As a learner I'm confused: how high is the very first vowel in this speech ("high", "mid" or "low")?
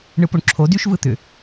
high